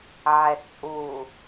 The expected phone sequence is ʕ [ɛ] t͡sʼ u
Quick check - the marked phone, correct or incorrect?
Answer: correct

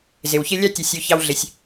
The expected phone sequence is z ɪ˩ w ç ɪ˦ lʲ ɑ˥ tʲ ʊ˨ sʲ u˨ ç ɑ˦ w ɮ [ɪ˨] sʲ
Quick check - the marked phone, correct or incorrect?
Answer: correct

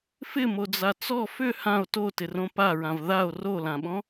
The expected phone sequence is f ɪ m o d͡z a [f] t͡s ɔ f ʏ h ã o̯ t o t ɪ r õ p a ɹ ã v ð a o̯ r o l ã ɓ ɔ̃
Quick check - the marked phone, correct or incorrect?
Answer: incorrect: none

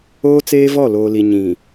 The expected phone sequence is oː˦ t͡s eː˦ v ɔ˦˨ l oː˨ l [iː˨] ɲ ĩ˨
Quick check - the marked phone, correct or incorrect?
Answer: incorrect: i˨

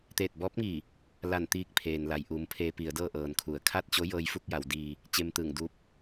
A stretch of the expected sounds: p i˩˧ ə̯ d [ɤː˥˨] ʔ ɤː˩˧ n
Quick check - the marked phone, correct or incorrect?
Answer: correct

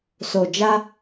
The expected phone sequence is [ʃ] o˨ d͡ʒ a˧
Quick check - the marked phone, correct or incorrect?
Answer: incorrect: s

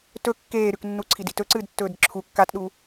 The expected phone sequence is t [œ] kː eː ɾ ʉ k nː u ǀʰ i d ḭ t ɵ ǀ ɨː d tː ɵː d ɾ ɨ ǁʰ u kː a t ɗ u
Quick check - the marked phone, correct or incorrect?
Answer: incorrect: ɵ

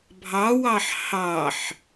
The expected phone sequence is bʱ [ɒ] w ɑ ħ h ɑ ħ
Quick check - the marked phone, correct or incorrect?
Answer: incorrect: ɑ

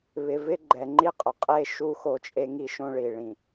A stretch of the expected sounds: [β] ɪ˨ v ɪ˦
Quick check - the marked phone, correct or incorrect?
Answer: correct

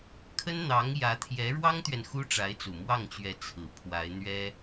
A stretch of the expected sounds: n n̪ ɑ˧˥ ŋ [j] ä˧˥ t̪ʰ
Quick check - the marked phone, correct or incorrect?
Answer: correct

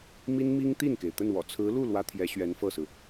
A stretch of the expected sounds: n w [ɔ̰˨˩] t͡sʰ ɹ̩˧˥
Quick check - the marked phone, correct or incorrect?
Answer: correct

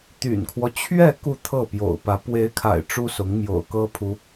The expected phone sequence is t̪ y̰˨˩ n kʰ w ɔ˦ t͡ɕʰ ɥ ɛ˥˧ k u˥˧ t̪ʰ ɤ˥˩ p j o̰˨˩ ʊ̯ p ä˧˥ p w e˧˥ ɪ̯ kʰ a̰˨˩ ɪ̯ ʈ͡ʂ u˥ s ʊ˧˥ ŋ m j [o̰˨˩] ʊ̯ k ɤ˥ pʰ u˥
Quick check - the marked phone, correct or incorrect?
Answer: correct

